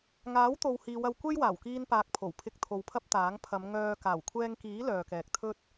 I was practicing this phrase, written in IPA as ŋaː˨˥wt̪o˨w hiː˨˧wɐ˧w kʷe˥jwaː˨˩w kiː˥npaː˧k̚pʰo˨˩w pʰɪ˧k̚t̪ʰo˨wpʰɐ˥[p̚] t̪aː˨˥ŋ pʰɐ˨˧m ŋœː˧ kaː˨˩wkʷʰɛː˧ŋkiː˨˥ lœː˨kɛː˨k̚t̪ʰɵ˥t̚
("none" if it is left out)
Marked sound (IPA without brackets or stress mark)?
p̚